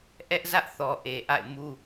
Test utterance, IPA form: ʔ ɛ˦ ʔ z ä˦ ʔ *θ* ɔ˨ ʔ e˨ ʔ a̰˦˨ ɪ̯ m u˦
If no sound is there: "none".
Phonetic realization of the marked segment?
θ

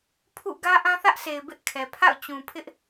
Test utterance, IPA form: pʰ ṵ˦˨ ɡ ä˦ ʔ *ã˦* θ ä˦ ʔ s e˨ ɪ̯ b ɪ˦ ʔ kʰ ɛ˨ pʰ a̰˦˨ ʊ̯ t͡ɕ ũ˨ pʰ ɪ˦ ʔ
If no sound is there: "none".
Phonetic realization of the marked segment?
ã˦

